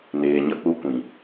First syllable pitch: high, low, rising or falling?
low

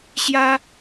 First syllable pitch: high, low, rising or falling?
high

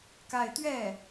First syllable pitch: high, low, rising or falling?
falling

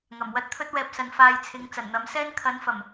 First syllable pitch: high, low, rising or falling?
low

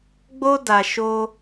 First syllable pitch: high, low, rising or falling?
high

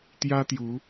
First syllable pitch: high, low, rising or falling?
high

